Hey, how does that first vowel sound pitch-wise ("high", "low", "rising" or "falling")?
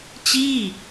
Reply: falling